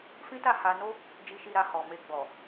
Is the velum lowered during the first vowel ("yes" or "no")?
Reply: yes